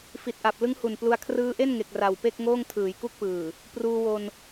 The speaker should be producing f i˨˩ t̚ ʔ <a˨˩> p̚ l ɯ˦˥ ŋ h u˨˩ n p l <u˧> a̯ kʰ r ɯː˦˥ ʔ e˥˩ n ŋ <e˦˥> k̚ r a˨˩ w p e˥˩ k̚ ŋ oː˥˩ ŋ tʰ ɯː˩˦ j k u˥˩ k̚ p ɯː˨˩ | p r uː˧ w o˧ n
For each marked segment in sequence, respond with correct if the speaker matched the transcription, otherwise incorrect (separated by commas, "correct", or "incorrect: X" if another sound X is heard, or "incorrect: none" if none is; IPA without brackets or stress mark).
correct, correct, incorrect: e˨˩